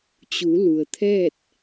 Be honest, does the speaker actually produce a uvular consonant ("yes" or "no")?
no